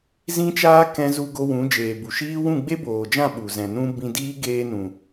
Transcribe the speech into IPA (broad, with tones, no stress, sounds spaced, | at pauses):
z ĩ˦ t͡ʃ aː˦ k ɛ̃˧ z u˧ ɡ o˧ w ũ˨˦ d͡ʒ eː˨ b u˨ ʃ iː˦ w ũ˦˨ ɡ͡b e˦ b oː˨ d͡ʒ ã˦˨ ɓ u˨ z ɛ̃˨ n ũ˧ b ĩ˧ d iː˦ ɡ eː˧ n ũ˨